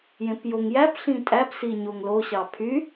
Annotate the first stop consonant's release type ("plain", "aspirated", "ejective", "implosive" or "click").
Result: plain